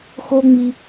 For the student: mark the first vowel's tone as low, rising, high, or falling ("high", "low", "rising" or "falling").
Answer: high